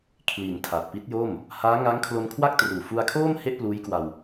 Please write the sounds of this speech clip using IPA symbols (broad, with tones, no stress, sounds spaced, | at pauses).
kʰ l i˩˦ n tʰ a˨˩ t̚ p i˦˥ t̚ j o˥˩ m | h aː˦˥ ŋ a˦˥ ŋ kʰ l o˧ n kʰ w a˥˩ k̚ t r uː˨˩ f u˧ a̯ kʰ oː˥˩ m h e˥˩ ʔ p l uː˦˥ j k w a˧ w